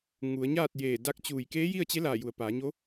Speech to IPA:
ŋ u˩˧ ə̯ ɲ aː˥˨ t̚ j eː˧˩ d a˧˥ k̚ t͡ɕ uː˧˩ j k eː˧˥ j i˥˨ ə̯ t͡ɕ e˧˥ l aː˧˩ j u˩˧ ə̯ p aː˩˧ ɲ o˧˥

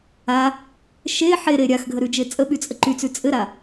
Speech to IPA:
a | ʃ e ħ e ɾ e ɾʲ a x ɡʱ ə ɾ ʉ d͡ʒ e t͡sʼ ə ɓ y t͡sʼ ə ǃ y t͡s ʉ t͡sʼ ɘ ɾ a

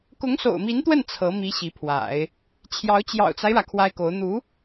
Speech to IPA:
k ʊ˧˥ ŋ s o̰˨˩ ʊ̯ m i˧˥ n t̪ w ə˥˩ n t͡sʰ ɤ˧˥ m i˧˥ ɕ i˧˥ pʰ w a̰˨˩˦ ɪ̯ | t͡ɕʰ j ɑ˧˥ ʊ̯ t͡ɕ j ɑ̰˨˩ ʊ̯ t͡s a˦ ɪ̯ ɻ ä˩ kʰ w a˥ ɪ̯ k o˧˥ ʊ̯ n̪ u˧˥

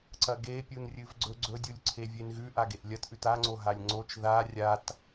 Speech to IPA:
ǀ ɐ ɡ e pʲ u n rʲ ɨ v ɡ͡ǀ ɵ ɡ͡ǀ ɵ dʲ u lʲ ǀʰ e vʲ e n ɣ ʉ ʔ a ɡ e ʔ lʲ ɐ t ʔ ʉ t a ŋ͡ǀ o ɦ a lʲ ŋ͡ǀ o t͡ʃ ð a rʲ a t

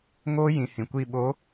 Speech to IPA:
ŋ oː˦ j ĩ˨ h ĩ˨ kʷ i˦˨ ɓ o˨˦

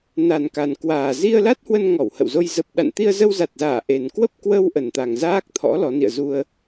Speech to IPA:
n a˨˩ n k a˨˩ n k w aː˨˩ z i˧ ə̯ l a˦˥ t̚ h w ə˧ n ŋ ɔ˧˩ w h ə̰˧˨ w z o˧ j z ə˨˩ p̚ ɗ a̰˧˨ n t̪ i˧ ə̯ z ə˧ w z a˨˩ t̚ z aː˧˩ ʔ e˨˩ n k w ə˦˥ p̚ k w ə˧ w ʔ ə˨˩ n t̪ a˨˩ ŋ z aː˦˥ k̚ t̪ʰ ɔ̰˧˥ l ɔ˨˦ n ḭ˧˨ ə̯ z u˧ ə̯

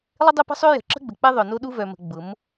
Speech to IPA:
lˠ ɪ˦ dˤ ɛ˦ p ə̤˦ sˤ ø˦ j ə̤˨ ǁ ə̤˦ ɡ͡b ə˨ k͡p ɛ˦ ðˤ œ˨ n o˦ ɗ u˦ v œ˨ m ə̤˨ ɡ͡b ʊ˨˦ m

